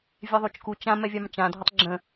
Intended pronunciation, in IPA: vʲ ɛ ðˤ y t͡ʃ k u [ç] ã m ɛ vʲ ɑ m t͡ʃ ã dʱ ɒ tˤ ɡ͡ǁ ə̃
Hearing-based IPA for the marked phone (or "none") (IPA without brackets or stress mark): t͡ʃ